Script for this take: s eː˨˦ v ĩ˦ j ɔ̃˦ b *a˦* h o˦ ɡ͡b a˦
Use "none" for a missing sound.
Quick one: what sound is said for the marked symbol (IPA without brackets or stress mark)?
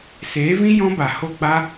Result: a˨